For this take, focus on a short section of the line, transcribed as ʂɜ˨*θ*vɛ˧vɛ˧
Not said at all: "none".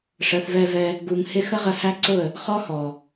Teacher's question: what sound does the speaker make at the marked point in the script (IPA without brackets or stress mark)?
θ